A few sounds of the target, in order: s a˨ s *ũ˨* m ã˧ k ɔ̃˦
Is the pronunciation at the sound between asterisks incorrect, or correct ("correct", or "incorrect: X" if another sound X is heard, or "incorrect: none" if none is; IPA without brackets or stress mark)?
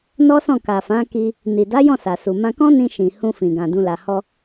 incorrect: u˨